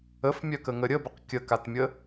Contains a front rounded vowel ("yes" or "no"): yes